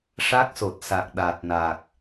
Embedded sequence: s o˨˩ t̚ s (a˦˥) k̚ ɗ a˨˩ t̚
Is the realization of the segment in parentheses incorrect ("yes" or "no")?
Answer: yes